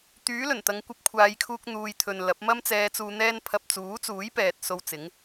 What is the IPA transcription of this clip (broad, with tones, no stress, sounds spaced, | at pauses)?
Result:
t̪ yː˨˥ l ɵ˨˩ n t̪ ɐ˨˧ ŋ kʷ ɐ˧ p̚ kʷʰ aː˨˧ j kʰ uː˧ k̚ n̪ uː˨ j t̪ʰ ɵ˨ n l ɐ˨˥ p̚ m ɐ˥ m t͡s ɛː˧ t͡s uː˧ n̪ ɛː˥ n pʰ ɐ˧ p̚ t͡s uː˨˥ t͡s uː˨˥ j p ɛː˨ t̚ s o˧ w t͡s ɪ˨˥ ŋ